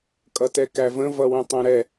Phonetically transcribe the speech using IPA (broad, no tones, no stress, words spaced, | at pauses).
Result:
kʼʌtɛkævə̃ vʌwə̃tˤæ̃ɾɛ